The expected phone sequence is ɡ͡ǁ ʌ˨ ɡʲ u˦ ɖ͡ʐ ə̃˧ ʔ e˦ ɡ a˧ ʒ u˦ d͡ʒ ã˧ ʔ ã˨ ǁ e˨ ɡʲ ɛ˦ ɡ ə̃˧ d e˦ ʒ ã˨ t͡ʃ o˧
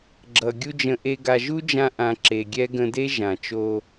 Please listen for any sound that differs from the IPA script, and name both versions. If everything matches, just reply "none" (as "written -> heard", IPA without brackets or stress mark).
ɖ͡ʐ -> d͡ʒ